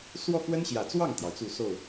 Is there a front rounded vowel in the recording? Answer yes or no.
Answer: no